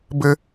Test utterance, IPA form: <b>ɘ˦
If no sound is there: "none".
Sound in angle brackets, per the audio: b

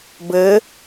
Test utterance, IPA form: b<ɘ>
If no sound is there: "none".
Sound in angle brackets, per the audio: ɘ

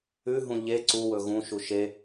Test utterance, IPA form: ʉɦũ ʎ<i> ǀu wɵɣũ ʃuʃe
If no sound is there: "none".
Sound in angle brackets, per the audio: e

